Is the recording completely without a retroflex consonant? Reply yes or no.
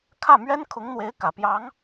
yes